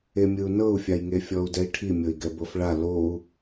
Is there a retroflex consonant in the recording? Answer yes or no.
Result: yes